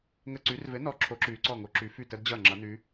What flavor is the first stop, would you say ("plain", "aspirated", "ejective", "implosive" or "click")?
click